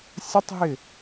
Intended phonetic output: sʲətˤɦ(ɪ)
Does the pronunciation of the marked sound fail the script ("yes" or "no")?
no